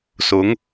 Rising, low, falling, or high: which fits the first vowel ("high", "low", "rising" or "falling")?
rising